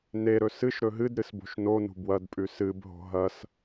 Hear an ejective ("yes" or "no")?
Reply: yes